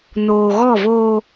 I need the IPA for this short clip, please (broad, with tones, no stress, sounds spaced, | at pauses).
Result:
n oː˨ ɣ ɔ˦˨ v oː˦